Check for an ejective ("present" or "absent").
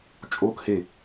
present